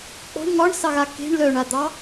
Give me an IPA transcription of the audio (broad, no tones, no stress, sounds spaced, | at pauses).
k͡p ɔ̤ ɳ ŋ ɒ ɳ s ɑ ɣ a k e̤ ɳ l œ ɳ a d̪ ɑ